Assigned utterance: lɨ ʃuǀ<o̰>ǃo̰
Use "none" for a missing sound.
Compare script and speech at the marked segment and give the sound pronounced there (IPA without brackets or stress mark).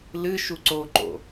o